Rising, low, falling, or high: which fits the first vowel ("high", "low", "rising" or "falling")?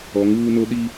rising